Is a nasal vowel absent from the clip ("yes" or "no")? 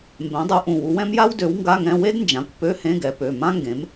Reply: no